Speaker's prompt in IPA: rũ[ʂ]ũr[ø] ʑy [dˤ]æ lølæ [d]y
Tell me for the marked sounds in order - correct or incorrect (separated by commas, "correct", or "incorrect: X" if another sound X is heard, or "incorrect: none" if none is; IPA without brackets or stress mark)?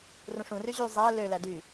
correct, incorrect: y, incorrect: zˤ, correct